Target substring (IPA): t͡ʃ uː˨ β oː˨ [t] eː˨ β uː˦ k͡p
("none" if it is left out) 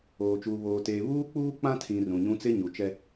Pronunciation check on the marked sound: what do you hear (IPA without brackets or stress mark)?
t